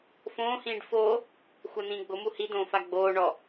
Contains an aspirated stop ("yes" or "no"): no